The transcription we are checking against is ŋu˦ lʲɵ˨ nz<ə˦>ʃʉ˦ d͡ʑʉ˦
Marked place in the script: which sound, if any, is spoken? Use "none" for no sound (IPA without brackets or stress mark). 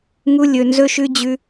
ɵ˦